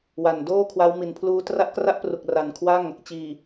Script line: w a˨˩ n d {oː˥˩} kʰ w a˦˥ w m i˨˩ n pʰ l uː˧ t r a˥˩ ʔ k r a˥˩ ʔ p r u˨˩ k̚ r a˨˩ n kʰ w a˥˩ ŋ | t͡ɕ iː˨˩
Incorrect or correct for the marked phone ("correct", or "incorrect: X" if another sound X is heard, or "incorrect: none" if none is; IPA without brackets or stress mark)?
correct